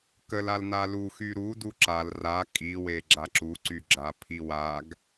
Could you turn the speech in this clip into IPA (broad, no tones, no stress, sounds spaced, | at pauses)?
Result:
k ə l a l n a l u x y ɾ u d u ǁ a l r a kʼ i w e ɡ͡ǁ a ǁ u ǀ y ɡ͡ǁ a pʰ i w a ɡ